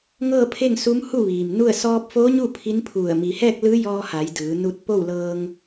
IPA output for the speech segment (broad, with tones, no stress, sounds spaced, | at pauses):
ŋ ɤː˥˨ pʰ e˥˨ ŋ s u˧˥ m h u˥˨ ʋ iː˩ m n u˥˨ ə̯ s ɔː˧ p̚ f oː˧˥ ɲ u˥˨ pʰ i˧˥ n pʰ u˧˩ ə̯ m i˩ h ɛː˥˨ k̚ l ɯː˧˥ j ɔː˧ h a˩˧ j d ɯː˩˧ n u˧ t̚ p o˥˨ w l ɤː˧ ŋ